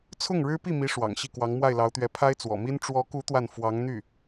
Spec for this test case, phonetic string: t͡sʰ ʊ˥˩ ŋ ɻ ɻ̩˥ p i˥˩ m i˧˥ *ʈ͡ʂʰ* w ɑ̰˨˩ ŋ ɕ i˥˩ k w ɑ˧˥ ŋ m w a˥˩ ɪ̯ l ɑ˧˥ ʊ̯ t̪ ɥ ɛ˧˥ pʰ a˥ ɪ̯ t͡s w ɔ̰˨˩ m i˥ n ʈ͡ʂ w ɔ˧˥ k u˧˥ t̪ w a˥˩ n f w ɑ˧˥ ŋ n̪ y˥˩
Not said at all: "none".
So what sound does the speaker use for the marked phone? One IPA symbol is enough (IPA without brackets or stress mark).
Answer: ʂ